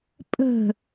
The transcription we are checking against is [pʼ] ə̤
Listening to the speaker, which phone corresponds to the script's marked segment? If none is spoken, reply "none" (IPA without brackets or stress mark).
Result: pʼ